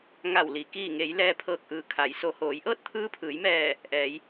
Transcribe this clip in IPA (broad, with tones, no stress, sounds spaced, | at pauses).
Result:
ŋ a˧˩ w l i˩ k iː˧˩ ŋ e˩˧ j l ɛː˧ pʰ ɤː˧˩ k̚ ʔ ɯː˩˧ kʰ a˩˧ j s o˩˧ h oː˩˧ j ʔ ɤː˥˨ t̚ t̪ʰ ɯː˧˥ pʰ ɯː˩˧ j m ɛː˧˩ | ʔ ɛː˩˧ j